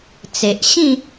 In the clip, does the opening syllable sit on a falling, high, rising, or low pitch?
low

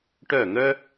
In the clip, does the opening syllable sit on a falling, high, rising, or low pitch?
falling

